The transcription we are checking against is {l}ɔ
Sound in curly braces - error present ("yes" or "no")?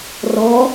yes